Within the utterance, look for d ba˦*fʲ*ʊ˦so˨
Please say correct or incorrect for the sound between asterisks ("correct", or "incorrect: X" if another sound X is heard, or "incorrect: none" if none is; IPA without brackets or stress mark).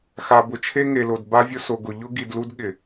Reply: incorrect: vʲ